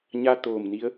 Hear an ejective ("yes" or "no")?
no